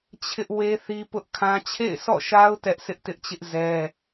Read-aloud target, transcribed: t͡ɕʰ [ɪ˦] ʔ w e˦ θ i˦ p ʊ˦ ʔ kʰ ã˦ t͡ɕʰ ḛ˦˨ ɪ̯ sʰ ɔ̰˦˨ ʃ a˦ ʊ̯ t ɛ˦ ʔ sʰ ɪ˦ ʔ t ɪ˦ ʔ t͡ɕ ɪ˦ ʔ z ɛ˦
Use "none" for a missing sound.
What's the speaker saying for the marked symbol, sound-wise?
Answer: ɪ˦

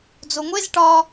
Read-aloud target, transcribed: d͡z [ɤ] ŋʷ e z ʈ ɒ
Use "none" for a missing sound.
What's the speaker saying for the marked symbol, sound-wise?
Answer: o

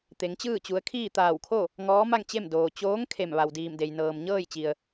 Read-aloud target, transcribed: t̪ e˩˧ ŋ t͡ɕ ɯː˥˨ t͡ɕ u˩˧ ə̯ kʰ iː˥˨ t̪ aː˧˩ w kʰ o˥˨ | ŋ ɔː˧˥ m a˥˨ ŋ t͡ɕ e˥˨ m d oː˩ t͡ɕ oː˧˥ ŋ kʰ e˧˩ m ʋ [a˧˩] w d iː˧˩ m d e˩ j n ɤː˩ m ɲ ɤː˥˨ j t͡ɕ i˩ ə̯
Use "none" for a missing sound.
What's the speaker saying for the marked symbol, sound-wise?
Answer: a˩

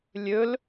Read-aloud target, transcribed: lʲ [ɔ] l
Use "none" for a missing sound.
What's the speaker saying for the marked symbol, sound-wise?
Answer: ɵ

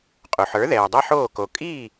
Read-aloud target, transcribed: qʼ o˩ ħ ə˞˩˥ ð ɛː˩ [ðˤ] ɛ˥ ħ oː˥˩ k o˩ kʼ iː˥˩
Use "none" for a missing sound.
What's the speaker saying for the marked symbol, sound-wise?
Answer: dˤ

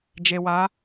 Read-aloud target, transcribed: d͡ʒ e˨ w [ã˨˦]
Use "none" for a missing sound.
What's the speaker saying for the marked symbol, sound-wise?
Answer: a˨˦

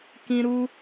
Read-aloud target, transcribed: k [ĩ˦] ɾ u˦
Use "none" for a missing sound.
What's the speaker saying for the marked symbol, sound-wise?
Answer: ĩ˦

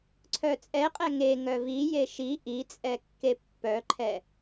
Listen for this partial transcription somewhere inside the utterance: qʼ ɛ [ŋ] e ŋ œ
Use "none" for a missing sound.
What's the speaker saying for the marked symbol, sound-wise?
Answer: ŋ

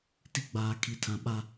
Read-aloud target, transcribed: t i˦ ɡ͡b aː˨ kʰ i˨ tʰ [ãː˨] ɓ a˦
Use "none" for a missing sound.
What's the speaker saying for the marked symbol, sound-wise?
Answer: ã˨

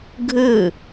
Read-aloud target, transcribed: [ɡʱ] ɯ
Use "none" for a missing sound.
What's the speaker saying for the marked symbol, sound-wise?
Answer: ɡʱ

